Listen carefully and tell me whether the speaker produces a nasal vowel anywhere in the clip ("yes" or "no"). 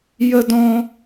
yes